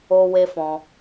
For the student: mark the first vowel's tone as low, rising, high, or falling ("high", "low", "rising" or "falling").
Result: high